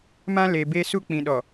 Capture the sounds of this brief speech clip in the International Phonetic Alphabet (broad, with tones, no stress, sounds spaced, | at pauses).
m ã˦ l e˨ b e˦ s u˦ k͡p ĩ˨ ɗ ɔ˨